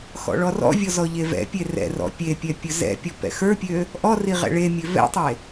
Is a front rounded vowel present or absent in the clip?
present